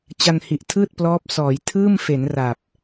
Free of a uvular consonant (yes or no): yes